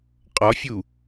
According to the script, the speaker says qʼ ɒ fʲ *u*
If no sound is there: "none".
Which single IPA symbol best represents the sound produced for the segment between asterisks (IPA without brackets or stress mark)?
u